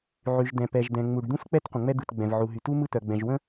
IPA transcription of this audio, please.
ʕ y˩ ʒ d̪ ɛ̃˩ p ɛ˩ ʒ d̪ ɛ̃˩ ŋ͡m u˩ ɖ d̪ ũ˥ s k͡p ɛ˥ t qʷ ə̃˩ ŋ͡m ɛ˥ d̪ ɯ˩ t ɡ͡b ɛ̃˩ v ʕ u˩ ɦ y˩ t u˥ m ɯ˥ t̪ œ˩ ɡ͡b ɛ̃˩ ʒ w ə̃˥

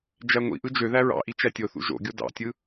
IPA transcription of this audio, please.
d͡ʒ æ ŋʷ ḭ ʔ ɯ d͡ʒ ø ð æ ɹ ɑ̰ ʔ i t͡ʃ æ tʲ o θ ṵ ʒ o̰ ɡʲ o d ɑ̰ tʲ ɯ

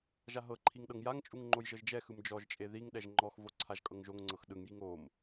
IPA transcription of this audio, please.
ʒ a ɦ ɤ ǃʰ i ŋ ɗ ɤ ŋ j a ŋ t͡ʃʼ u ŋ ŋ͡ǃ o j ʒ ɤ ʒ d͡ʒ ɛ x ɯ m d͡ʒ ɔ ʒ t͡ʃʼ e ð i ŋ ɗ ɛ ʒ ŋ͡ǃ ɔ x v o ǀʰ a ʒ kʼ ɤ ŋ ʒ o ŋ ŋ͡ǀ ɤ x ɗ ɯ ŋ j i ŋ o m

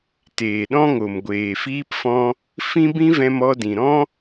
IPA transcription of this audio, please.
t eː˨ ɗ ɔ̃˦ ŋ o˨ m ɡʷ eː˨ f iː˦ p f ɔ̃˦ | f ĩ˦ b ĩ˦ v ɛ̃˧ m ɔ˧ d ĩ˨ ɾ ɔ̃˦

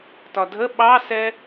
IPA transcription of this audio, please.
t ɒ dʱ ə ɓ ɑ s ɛ

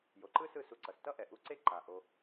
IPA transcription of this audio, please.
j o˨ ǃ ɯ˦ s ɯ˦˨ s u˧ ǀ ʌ˨ s t ʌ˦ ʔ ɛ˨ ʔ u˧ ǀ e˦ ǃ a˨ ʔ o˧

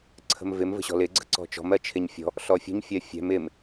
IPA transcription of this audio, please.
ǀʰ ə̤ m v ɪ m v ə̤ ɕ ɔ̤ l ɪ ɡ͡ǀ ə̤ ǀ ɔ̤ t͡ʃ ɔ̤ m ɜ t͡ʃʰ ɪ ɲ fʲ ɔ̤ | ɬ ɔ fʲ ṳ ɲ fʲ ɜ fʲ ɛ̤ m ɪ m

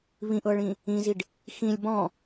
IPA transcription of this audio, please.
β ĩ ʔ ɤ ɭ ĩ | ĩ z i ɖ | x ĩ lʲ b ɔ̃

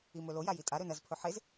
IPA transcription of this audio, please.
i m ɵ l o j a j i tʼ a ɾ ɵ n ɐ z pʰ ɵ ħ e z

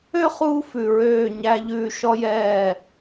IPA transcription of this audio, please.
ø˦ χ uː˧ f ʉ˨ ɹ øː˦˨ ɲ æ˧ ʎ ʉː˧ ʃ ɔ˦ j ɛː˦˨

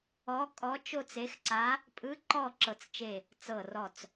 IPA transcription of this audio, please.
ɔ˧˥ kʼ ɔ˧˥ t͡ʃ o˥˧ t͡s e˧˥ x ǀ a˧˥ | pʼ ɯ˧˥ ǃ ɔ˥˧ ǁ ɤ˧˩ t͡s t͡ʃ e˧˩ | t͡s ɤ˧˩ r ɔ˧˩ t͡s

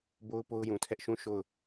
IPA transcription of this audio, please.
b o˦ ʊ̯ p o˦ ʊ̯ j ũ˨ tʰ ɛ˦ ʔ ʃ ũ˦˨ ʃ o˦˨ ʊ̯

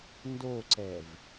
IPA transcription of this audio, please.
n d o ǀ ɛ v

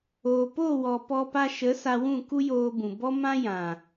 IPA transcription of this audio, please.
oː˨ p o˦˨ w ɔ˨ p ɔ˧ p a˧ ʃ ə˨˦ s a˧ w ũ˦˨ k u˦ j oː˧ b ũ˨ b ɔ˦ m ã˦ j ã˨

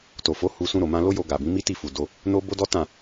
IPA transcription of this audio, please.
t o˨ f o˨˦ h u˧ s ũ˧ ɾ o˨ m ã˧ l o˦ j o˧ ɡ a˨ b ĩ˨˦ m i˦ t i˦˨ f u˨ d o˧ | n o˦ b o˦ d ɔ˦ t ã˦˨

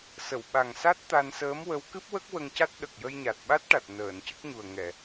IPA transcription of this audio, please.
s ə˨˩˨ w ɓ a˨˩ ŋ s a˦˥ t̚ t̪ a˧ n s əː˧˥ m w ə˧˥ w k ɨ˦˥ p̚ w ə˦˥ k̚ w ə˧ ŋ c a˦˥ t̚ ɗ ə˨˩ k̚ j ə˧ j ɲ a˨˩ t̚ ɓ a˦˥ t̚ ʈ a˨˩ t̚ n əː˨˩˨ n c ə˦˥ k̚ ɲ u˨˩ ə̯ ŋ ɛ˨˩˨

